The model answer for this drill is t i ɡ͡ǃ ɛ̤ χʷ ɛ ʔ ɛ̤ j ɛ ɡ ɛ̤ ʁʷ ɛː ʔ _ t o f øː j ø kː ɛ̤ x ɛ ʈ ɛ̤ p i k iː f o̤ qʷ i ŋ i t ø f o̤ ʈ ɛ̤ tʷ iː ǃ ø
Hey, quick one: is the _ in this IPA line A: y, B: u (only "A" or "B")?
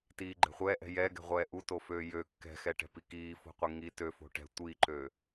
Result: B